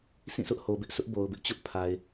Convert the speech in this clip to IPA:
s ĩ˦˨ s ʊ˦ ʔ h o˨ b ɪ˦ ʔ s ʊ˦ ʔ b o˨ ʊ̯ b ɪ˦ ʔ t͡ɕ ʊ˦ ʔ pʰ a˨ ɪ̯

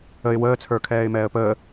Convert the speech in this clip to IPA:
ə ɪ̯ w əː t͡sʰ ə˞ kʰ ɛː ɪ̯ m ɛː ə̯ p əː

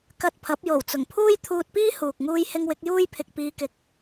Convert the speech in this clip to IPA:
k ɐ˧ t̚ pʰ ɐ˨˥ p̚ j o˨˩ w t͡s ʊ˨˩ ŋ pʰ uː˥ j t̪ʰ uː˧ t̚ p iː˥ h uː˨ k̚ ŋ uː˥ j h ɪ˥ ŋ w ɪ˨˥ k̚ j uː˥ j pʰ ɪ˨ k̚ p iː˧ k ɪ˨˥ k̚

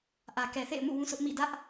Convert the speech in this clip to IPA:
ʔ ä˨ k ɛ˨ θ ḛ˦˨ ɪ̯ m ṵ˦˨ w ũ˦ sʰ ʊ˦ ʔ m ḭ˦˨ d ä˦ ʔ

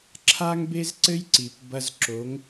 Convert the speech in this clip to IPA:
ǁʰ a˥ ŋ b e˥ z ǀ ɘ˥ j ǀ i˨ p b ɐ˥ z ǁ o˨˦ ŋ

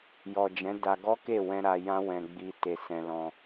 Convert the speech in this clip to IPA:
j ɔ˨ d͡ʒ ɛ̃˨˦ d a˧ ɡ ɔ˦ k e˦˨ w ɛ̃˧ ɾ a˧ j ã˦ w ɛ̃˧ ɡ͡b i˧ t e˧ s ɛ̃˧ l ɔ̃˧

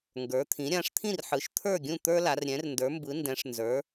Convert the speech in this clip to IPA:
ŋ ɡ ə˞˩˧ t̪ʰ ĩ˩˧ ɾʲ ã˩˧ ʂ t̪ʰ ĩ˥˩ r ħ ɯ˩˧ ʃ t̪ʰ ə˞˥˩ ɡʲ ũ˥˩ t̪ ə˞˦ l a˩˧ r ɾʲ ɛ̃˩˧ r n d ə˞˩˧ m b ɯ˩˧ n d ɛ̃˩˧ ʂ n z ə˞˩˧

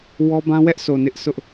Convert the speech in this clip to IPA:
w ɔ˦ b ã˦ w ɛ˦ ʔ s o˨ n ɪ˦ ʔ sʰ ʊ˦ ʔ

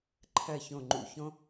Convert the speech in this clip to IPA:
ǃʰ ɜ˧˩ ç õ˧˩ ŋ͡ǃ ṵ˧˩ ç õ˥

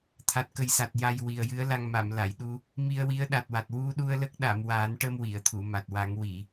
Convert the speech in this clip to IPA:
t̪ʰ a˨˩ t̚ k ə˨˩ j s a˨˩ t̚ j a˧ j w i˨˩ ə̯ j ɨ˧˥ ə̯ l a˧ ŋ m a˨˩˨ m l a˨˩˨ j ɗ u˧ | m i˧ ə̯ w i˧˥ ə̯ ɗ a˨˩ t̚ w a˨˩ t̚ w u˧ ɗ u˧ ə̯ l ə˦˥ k̚ ɗ a˨˩˨ m w a˨˩˦ n ʈ ə˧ m w i˨˩˨ ə̯ t̪ʰ u˨˩˨ m a˨˩ t̚ w a˨˩˦ ŋ w i˨˩˨

